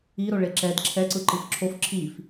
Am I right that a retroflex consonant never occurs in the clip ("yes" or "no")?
no